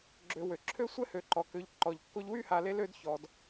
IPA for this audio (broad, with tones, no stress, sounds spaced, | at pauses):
ɡ͡ǁ ø˨ w ø˩ ǁʰ ø˥ sʷ ɛ˥ h ø˩ ǃ ɔ˩ k ø˨ ʎ ǃ ɔ˩ ʎ kː o˦ ʎ w y˥ h a˨ l e˦ l ø˦ d ç ɔ˩ d